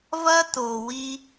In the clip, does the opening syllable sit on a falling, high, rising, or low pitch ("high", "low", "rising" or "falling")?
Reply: high